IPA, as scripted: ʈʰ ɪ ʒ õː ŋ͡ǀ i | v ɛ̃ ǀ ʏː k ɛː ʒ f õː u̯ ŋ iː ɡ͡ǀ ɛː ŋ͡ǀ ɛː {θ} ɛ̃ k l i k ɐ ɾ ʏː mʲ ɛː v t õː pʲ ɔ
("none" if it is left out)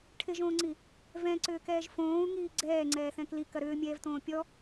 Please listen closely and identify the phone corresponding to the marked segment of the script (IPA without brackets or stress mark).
θ